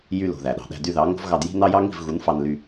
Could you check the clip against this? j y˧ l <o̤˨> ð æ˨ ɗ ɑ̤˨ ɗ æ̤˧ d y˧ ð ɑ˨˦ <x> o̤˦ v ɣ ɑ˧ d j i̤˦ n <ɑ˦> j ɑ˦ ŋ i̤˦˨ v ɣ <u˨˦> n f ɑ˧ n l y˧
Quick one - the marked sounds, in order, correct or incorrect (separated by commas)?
correct, incorrect, correct, correct